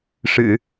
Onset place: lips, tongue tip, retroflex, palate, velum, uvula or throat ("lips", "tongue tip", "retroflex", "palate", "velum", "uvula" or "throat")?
retroflex